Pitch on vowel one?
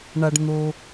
low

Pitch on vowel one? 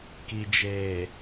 low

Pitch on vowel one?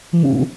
low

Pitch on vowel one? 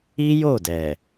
high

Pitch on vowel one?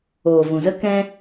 low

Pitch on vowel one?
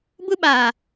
high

